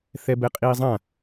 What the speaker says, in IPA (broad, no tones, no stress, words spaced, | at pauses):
θɛbɛqʼiːzˤã